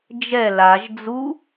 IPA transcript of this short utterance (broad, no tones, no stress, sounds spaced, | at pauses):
d͡ʒ ɛ l a ʒ d͡z u